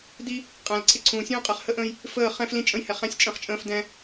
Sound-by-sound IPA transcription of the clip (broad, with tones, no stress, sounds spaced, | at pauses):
d i˦ | qʼ æ̃˨ l ǀʰ ɪ˦ ǀʰ ũː˨ sʲ ũː˦ qʼ ɛ˨ χ h ə˦ ʔ ə̃ː˦ j | f əː˦˨ χ ɛ̃˦ f l ĩ˦ t͡ʃʼ ə̃˦ j h ɛ˨ χ æ̃˦ sʲ t͡ʃʼ ə̃˦˨ χ t͡ʃʼ ə̃ː˦ f d ɛ̃˦